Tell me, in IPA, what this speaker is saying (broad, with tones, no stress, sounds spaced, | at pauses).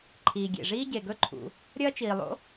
ǃʰ iː˩ ɡʲ ḛ˩ ʐ iː˥ ɟ e˩ ɡ ɵ˥ ǃʰ ṵ˩ | ɾʲ ɐː˥ t͡ʃ iː˩ lˠ o̰˥